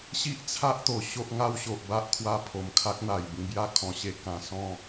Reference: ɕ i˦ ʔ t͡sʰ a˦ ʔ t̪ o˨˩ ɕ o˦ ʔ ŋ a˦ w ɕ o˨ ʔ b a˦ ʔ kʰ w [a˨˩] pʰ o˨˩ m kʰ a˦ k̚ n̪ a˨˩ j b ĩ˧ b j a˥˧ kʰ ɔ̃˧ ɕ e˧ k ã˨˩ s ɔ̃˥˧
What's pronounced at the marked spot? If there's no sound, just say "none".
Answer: a˧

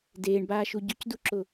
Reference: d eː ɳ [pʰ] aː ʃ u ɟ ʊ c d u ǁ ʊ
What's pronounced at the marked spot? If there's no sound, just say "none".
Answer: b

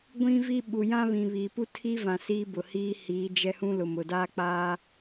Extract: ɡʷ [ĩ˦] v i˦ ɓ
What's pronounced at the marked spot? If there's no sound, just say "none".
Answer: ĩ˦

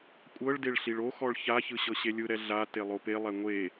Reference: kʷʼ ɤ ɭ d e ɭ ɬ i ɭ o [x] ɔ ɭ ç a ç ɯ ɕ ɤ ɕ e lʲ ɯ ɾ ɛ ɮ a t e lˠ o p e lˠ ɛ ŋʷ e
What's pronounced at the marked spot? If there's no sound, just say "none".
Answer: x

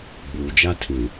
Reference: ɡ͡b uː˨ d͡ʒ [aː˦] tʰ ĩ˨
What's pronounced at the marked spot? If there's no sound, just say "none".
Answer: a˦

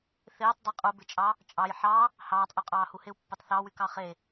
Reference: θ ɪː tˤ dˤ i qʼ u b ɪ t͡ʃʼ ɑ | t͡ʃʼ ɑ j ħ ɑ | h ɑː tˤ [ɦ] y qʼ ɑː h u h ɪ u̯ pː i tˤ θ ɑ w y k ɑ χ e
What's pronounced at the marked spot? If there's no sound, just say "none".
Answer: ʔ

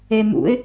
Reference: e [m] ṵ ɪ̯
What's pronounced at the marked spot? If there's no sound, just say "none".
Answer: m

